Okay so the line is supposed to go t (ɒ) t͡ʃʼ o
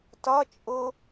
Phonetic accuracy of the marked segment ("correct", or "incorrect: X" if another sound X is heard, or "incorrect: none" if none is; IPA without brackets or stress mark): correct